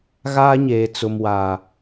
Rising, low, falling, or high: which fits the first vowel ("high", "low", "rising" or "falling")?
high